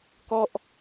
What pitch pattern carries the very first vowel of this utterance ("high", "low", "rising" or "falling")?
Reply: falling